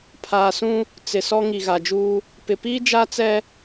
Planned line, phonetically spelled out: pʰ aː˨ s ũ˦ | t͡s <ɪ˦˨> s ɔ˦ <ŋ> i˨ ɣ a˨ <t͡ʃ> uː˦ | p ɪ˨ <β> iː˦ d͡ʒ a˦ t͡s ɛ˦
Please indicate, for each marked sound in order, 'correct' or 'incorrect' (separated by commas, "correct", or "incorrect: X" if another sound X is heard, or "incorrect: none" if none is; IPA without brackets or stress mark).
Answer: incorrect: ɪ˨, correct, incorrect: d͡ʒ, incorrect: p